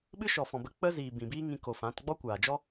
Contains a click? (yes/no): no